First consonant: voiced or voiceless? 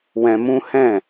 voiced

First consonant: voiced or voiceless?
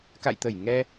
voiceless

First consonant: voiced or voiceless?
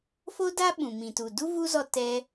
voiceless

